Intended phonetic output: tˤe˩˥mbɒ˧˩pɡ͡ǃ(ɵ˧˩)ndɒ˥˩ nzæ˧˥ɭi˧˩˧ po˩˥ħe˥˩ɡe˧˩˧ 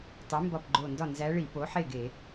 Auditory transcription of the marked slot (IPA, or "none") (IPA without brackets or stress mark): o˧˩